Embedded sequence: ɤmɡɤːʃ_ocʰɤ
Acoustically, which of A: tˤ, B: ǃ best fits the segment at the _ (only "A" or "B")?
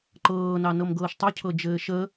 A